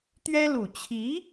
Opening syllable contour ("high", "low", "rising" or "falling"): high